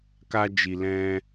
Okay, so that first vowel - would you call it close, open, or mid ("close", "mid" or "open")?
open